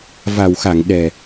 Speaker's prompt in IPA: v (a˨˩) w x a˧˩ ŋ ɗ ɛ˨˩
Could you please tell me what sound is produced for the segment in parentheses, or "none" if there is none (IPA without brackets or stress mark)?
a˨˩